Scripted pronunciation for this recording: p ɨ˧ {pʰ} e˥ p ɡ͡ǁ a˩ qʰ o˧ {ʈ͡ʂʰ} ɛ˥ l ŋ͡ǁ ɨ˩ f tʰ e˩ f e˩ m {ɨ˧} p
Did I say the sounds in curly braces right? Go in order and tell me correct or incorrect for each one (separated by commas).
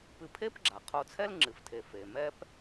correct, incorrect, incorrect